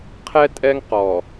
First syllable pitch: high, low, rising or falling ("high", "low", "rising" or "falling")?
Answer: high